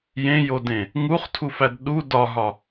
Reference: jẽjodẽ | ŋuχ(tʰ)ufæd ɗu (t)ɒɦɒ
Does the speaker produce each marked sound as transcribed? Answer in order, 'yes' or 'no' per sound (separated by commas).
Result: yes, no